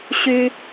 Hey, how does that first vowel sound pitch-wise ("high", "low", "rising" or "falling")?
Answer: high